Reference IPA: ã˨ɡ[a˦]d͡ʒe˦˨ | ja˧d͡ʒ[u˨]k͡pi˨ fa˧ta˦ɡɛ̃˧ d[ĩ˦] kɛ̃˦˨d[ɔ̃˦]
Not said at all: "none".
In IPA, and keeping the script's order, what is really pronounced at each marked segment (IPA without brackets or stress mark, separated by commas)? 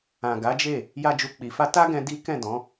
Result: a˨˦, u˨, i˦, ɔ̃˨˦